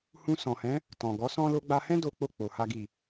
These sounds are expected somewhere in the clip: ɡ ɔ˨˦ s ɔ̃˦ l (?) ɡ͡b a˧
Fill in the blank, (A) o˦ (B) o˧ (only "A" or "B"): B